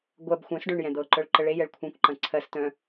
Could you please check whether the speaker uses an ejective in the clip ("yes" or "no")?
no